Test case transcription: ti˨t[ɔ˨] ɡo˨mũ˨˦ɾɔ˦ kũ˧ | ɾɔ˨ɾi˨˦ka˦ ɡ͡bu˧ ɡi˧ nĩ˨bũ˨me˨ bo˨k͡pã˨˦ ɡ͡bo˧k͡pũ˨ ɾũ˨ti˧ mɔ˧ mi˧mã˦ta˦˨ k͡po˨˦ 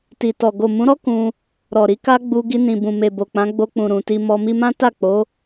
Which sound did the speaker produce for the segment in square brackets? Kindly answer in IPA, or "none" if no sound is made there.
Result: ɔ˨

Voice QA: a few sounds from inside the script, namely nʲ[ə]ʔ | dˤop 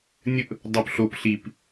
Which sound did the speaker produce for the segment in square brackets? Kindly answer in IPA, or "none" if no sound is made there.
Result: ə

